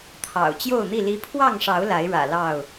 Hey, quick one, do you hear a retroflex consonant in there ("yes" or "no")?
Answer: yes